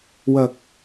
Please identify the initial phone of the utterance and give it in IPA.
w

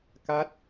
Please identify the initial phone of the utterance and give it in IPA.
k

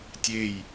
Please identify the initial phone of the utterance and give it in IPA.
tʲ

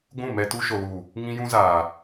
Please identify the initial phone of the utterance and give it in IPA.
ɡʷ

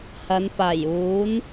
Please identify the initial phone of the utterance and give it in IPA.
h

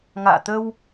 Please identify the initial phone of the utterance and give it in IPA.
ŋ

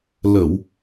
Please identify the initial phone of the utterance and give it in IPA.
l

